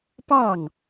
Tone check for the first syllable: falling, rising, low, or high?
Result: falling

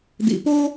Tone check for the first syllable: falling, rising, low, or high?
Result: low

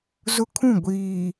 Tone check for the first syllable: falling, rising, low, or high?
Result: high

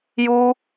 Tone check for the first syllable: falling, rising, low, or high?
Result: high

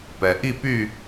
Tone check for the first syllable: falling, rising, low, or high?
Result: low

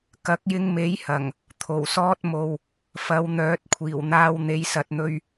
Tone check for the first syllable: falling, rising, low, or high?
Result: rising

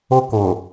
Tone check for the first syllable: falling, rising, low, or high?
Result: high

